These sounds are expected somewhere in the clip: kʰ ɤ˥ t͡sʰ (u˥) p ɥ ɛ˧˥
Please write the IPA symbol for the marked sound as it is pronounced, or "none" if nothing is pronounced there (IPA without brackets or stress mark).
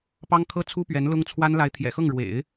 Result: u˥